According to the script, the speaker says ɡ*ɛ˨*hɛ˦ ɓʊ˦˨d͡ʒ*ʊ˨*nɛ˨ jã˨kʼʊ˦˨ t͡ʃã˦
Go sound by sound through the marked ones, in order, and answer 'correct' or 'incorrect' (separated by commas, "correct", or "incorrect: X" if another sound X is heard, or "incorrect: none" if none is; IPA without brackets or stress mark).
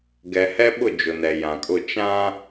correct, correct